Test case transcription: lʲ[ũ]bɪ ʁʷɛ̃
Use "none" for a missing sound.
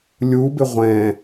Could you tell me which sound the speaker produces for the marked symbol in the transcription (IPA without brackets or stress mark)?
u